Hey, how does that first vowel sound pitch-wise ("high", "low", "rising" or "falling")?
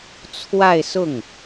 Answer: falling